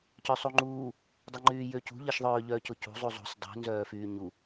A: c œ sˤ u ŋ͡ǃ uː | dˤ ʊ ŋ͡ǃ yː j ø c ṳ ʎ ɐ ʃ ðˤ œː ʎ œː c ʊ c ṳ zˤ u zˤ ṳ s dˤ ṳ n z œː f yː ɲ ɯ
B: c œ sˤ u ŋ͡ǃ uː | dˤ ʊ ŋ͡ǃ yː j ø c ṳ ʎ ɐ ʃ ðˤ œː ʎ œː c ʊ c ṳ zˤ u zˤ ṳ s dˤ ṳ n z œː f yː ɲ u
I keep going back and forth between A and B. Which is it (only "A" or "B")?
B